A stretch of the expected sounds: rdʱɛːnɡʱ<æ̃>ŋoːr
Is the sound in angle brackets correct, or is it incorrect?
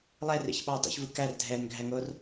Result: incorrect